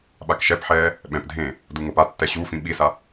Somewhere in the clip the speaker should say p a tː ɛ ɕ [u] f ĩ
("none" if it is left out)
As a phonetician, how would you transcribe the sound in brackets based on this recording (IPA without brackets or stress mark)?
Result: u